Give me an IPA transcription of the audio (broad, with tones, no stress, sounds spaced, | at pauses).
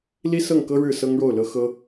l i˥ s ɤ˥˩ ŋ k ɤ˥ ɻ ɻ̩˥˩ s ɤ˥ ŋ ɻ o˥˩ ʊ̯ l ɤ˥ x ɤ˥